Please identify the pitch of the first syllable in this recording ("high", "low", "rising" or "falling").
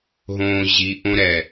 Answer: low